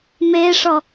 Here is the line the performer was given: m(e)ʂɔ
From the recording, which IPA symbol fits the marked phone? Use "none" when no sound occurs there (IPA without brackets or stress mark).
e